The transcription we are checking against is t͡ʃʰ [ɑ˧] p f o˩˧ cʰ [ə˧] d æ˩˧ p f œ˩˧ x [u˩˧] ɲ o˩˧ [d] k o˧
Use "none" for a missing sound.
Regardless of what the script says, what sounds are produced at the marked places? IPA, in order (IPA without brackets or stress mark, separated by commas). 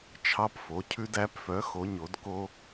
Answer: ɑ˧, ʉ˧, o˩˧, d